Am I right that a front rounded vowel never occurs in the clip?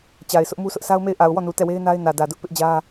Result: yes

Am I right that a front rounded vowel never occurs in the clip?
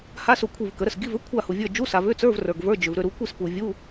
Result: no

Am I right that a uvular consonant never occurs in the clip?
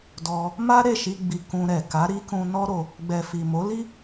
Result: yes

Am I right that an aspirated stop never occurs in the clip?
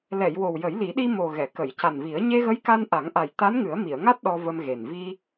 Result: yes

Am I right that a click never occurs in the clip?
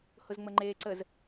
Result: no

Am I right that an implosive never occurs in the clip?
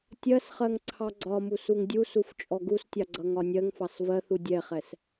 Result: yes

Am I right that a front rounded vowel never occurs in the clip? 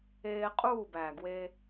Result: yes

